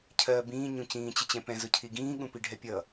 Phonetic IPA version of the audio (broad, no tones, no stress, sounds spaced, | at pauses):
cʰ ɜː b ĩː ɲ ũ c ĩː t͡ɕ ɪ t͡ɕ ɛ̃ p ɛ̃ z ʊ cʰ i ɡ ĩː ɠ ũ p i ɖʱ ɛ pʲ ʌ